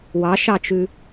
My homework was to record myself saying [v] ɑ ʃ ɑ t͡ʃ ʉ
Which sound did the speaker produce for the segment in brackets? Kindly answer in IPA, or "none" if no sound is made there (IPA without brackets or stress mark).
w